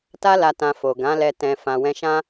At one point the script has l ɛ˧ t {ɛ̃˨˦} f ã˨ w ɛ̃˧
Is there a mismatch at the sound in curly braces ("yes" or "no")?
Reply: yes